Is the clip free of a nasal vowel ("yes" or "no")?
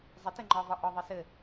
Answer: yes